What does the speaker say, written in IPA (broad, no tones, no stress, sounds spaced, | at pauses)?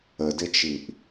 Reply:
ə d ɪ t͡ʃ i ʔ